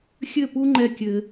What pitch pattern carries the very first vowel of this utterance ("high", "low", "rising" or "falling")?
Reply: falling